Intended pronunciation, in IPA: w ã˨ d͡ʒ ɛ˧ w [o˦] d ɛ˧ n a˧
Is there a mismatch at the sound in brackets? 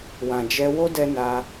no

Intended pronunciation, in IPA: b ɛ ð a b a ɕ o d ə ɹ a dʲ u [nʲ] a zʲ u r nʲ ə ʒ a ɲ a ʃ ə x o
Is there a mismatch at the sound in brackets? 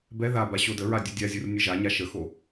yes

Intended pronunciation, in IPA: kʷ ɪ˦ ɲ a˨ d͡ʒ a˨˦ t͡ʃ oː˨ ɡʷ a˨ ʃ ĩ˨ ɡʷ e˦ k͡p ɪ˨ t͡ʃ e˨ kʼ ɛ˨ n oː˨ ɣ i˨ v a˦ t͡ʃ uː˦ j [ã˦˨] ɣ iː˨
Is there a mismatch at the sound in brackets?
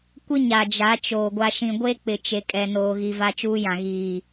yes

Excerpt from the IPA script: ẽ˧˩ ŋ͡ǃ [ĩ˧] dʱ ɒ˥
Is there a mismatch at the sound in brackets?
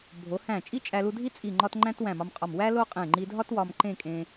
yes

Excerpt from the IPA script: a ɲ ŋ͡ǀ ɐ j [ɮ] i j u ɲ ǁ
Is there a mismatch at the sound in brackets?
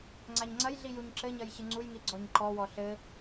no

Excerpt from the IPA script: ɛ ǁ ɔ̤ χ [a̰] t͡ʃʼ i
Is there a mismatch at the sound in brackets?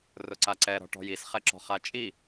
yes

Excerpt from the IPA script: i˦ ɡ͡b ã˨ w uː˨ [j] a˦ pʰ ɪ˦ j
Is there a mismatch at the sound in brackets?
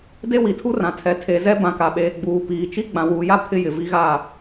no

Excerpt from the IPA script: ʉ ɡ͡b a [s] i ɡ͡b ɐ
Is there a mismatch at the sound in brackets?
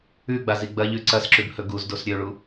yes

